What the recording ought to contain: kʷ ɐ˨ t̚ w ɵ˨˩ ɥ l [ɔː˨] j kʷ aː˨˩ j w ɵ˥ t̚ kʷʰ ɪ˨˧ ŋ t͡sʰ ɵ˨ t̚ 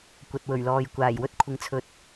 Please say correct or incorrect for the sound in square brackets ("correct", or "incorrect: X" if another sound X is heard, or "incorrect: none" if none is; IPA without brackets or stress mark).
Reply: correct